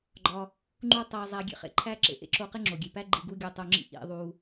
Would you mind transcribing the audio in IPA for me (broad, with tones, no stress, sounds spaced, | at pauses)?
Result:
ɡ͡ǃ ɒ˧ | ŋ͡ǃ u˥ tˤ æ˧ zˤ æ˧ ɡʲ ḛ˧ χ ḛ˩ ǃʰ æ˥ ǁ ḛ˩ ʔ ḛ˥ ǁ o˧ q e˥ ŋ͡ǁ o˩ ɡʲ e˩ p æ˥ ɡ͡ǃ i˧ ɡ u˥ ɡʲ o˧ tˤ o˧ ŋ͡ǁ ḭ˥ ʔ ḭ˧ ðˤ u˧